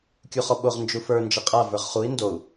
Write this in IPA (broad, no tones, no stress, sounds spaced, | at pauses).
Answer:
kʲ u χ ɔ ɓ o ʁ n d͡ʒ u f ə˞ n d͡ʒ ɘ qʼ a v ə˞ ʁ χ u i̯ n d o u̯